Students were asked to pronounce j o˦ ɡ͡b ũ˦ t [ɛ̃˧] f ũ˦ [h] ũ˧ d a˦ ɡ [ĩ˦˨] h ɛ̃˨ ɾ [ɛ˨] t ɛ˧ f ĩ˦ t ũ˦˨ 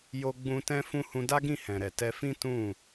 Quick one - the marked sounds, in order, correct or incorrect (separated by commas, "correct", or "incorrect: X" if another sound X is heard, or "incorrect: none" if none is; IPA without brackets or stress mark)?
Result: incorrect: ɛ̃˦, correct, correct, correct